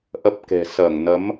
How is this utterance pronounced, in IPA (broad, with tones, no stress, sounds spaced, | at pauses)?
ʔ ə˦˥ p̚ k e̤˨˩ s əː˧˩ ŋ n ə˨˦ m